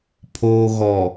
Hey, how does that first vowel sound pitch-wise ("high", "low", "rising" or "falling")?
low